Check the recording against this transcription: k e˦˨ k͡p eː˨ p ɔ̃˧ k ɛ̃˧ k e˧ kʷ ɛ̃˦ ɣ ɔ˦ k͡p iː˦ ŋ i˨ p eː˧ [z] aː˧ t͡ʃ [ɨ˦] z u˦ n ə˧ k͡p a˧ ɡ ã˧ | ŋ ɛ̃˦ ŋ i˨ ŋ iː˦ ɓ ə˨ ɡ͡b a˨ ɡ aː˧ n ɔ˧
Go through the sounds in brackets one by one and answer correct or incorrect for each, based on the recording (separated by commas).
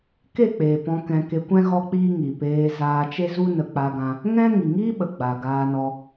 correct, incorrect